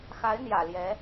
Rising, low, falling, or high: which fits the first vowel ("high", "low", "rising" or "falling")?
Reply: rising